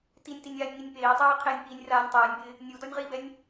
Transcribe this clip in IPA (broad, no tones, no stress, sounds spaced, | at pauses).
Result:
t i nʲ t i nʲ aː nʲ ŋ i nʲ p eː tˤ ɛː qʰ e nʲ p iː nʲ r aː nʲ tˤ ɛː nʲ b ɪː | nʲ u d ɔ nʲ ʁ i b ɛ nʲ